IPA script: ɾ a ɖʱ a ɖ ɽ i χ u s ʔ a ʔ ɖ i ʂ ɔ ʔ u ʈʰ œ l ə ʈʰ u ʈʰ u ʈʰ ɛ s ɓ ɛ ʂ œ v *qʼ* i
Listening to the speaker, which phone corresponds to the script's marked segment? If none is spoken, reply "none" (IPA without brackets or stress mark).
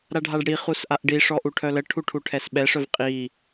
qʼ